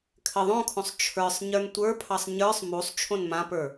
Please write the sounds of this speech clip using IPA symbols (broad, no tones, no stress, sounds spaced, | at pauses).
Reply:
kʰ ɘ ðˤ õ kʰ õ sˤ t͡ʃʰ ə˞ sˤ ɲ ə˞ n tʷ ə˞ pʰ ɑ sˤ ɲ ə˞ sˤ m u sˤ t͡ʃʰ õ n m ã p ə˞